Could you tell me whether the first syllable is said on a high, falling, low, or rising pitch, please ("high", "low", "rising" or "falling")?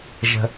high